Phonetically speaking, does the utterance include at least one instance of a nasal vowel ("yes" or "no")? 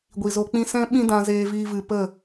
yes